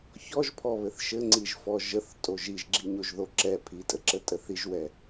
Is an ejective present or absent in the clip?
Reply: present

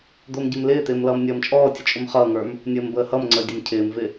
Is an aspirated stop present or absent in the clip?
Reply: present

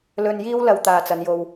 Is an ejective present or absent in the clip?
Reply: absent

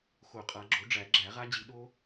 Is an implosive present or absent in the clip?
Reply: present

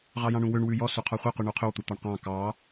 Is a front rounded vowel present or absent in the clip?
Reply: present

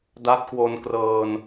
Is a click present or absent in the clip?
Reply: absent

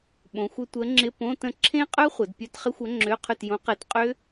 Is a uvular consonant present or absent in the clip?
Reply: present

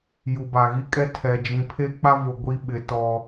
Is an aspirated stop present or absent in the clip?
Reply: present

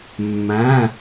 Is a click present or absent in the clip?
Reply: absent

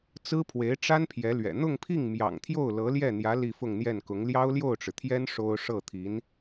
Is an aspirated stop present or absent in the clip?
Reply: present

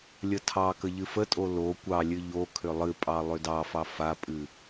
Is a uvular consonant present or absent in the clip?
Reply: absent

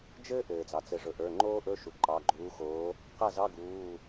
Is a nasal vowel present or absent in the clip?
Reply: absent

